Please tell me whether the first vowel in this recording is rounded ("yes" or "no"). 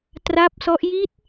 no